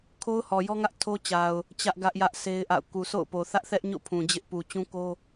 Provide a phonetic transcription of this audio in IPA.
kʰ o˦ ʊ̯ h ɔ˨ j ɔ˦ ŋ ä˦ ʔ tʰ o˦ t͡ɕ a˨ ʊ̯ | t͡ɕ ä˦ ʔ ɡ ä˦ ʔ j ä˦ ʔ sʰ e˦ ɪ̯ ʔ a̰˦˨ ʊ̯ k u˨ sʰ o̰˦˨ ʊ̯ p o˨ θ ä˦ ʔ θ ɛ˦ ʔ ɲ o̰˦˨ pʰ ũ˨ d͡ʑ ɪ˦ ʔ p u˨ t͡ɕ ũ˦ k o˦

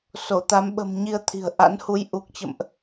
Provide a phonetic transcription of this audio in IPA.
s o˧˩ t̪ a˨˦ m ɓ ə̤˨˩ m ɲ i˧ ə̯ t̪ʰ i̤˨˩ ə̯ ʔ a̰˧˥ n h u˨˦ j ʔ u˨˩ k̚ t͡ɕ ə̰˧˨ m ʔ

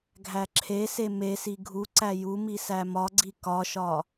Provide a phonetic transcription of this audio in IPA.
ɡʱ æ ǁʰ e s e m e s i ɡʱ u ǀ æ j u m i s æ m ɒ ɡ͡ǀ i k ɒ ʃ ɒ

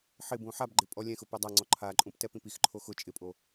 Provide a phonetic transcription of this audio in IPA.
ħ ɪ b ũ ħ a b ɡ͡ǃ ɪ pʼ ɔ lʲ ɛ̃ x ʊ p ɛ dˤ a ŋ͡ǀ ɔ ǃʰ a ǃʼ ũ p t ɛ p ĩ p i x ǃʰ o x ʊ t͡ʃʼ ɪ pʼ o

